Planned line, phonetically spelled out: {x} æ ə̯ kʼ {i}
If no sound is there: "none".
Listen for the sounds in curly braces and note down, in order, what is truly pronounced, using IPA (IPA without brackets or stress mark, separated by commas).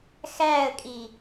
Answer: x, i